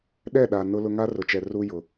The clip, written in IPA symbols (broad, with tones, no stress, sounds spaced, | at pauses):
ɗ ɛ˦˨ ɗ a˨ n ʊ˦ l ʊ˦ ŋ a˦ r ʊ˨ t͡ʃ ɛ˨ r u˦ j ʊ˨